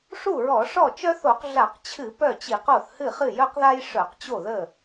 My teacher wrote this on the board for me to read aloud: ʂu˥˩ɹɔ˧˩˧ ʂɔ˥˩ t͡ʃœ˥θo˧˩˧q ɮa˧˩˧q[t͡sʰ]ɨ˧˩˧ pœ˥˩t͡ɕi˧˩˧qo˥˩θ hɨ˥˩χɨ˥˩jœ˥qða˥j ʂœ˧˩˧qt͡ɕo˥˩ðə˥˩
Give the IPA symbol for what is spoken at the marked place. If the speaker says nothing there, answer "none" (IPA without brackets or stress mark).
t͡ɕʰ